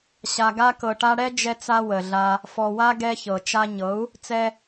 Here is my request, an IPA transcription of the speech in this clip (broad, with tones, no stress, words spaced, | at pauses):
ɕa˨ ɡa˧kɤ˨ʈa˧ɽɛ˦ d͡ʒɛ˧t͡sa˧ wə˨ɮa˧ | fɔ˨wa˧ ɡɛ˧çɤ˨ t͡ʃa˧ ɲɤ˨˦u̯ | t͡sɛ˧